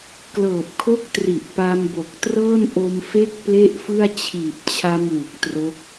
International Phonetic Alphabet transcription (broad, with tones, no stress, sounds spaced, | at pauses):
k l ɤː˨˩ p̚ kʰ o˦˥ k̚ t r i˨˩ ʔ p a˧ m b o˨˩ k̚ t r ɤː˥˩ n ʔ o˧ m f e˦˥ k̚ p l e˥˩ ʔ f ɯ˥˩ a̯ t͡ɕʰ iː˨˩ p̚ t͡ɕʰ a˧ m w u˨˩ k̚ t r o˦˥ k̚